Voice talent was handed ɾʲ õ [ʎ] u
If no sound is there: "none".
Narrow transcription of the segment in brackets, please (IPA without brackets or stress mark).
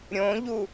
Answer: ʎ